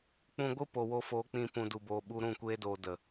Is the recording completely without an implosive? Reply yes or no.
no